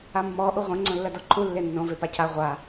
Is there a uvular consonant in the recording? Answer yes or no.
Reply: yes